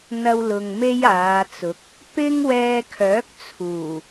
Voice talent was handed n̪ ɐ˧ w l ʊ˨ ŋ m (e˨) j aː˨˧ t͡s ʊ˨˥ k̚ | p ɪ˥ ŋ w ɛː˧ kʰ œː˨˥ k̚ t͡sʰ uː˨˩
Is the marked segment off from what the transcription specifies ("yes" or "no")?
yes